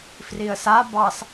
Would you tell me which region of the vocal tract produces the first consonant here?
lips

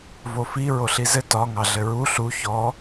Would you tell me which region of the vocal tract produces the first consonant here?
lips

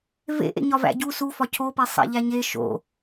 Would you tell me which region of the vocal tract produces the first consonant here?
lips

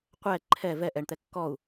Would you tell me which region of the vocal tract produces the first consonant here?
uvula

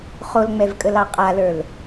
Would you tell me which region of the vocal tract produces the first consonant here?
uvula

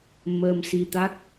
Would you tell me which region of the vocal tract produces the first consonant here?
lips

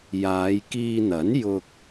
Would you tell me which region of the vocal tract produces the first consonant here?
palate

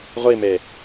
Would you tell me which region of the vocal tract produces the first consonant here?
uvula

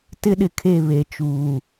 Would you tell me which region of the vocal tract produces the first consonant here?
tongue tip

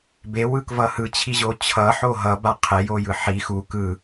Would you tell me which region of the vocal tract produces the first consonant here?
lips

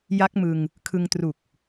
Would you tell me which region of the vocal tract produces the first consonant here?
palate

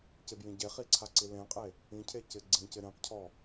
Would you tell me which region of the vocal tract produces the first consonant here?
palate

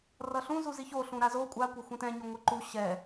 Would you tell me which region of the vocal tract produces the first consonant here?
tongue tip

